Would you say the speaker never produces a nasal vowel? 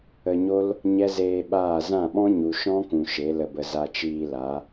no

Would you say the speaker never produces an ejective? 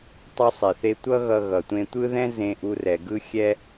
yes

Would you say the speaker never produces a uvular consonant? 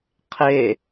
no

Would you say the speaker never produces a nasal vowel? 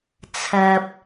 yes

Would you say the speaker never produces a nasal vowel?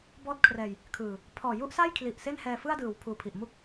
yes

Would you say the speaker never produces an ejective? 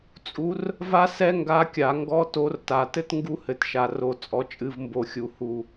no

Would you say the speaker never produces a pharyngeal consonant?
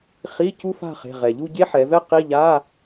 no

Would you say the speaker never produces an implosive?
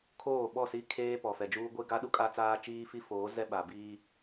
no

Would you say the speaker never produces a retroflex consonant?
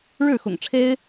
no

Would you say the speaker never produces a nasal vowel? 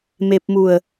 yes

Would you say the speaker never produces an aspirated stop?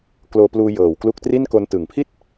no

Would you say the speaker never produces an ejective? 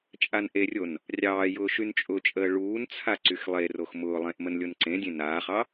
no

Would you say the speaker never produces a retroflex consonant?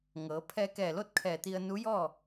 yes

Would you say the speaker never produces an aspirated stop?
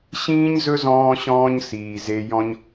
yes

